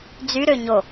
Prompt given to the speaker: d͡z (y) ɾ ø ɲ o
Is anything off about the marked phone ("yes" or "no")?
no